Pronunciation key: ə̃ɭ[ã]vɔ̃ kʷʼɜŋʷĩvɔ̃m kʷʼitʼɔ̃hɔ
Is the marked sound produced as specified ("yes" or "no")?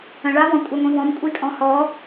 no